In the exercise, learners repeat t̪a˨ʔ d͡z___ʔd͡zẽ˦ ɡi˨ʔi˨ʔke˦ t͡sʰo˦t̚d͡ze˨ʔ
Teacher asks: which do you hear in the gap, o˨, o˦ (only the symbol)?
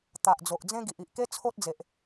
o˨